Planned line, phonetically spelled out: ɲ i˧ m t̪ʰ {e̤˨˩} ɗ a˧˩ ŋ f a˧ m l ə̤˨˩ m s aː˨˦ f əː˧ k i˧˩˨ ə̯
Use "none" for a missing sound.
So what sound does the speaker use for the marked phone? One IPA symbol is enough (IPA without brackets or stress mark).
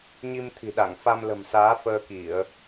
i̤˨˩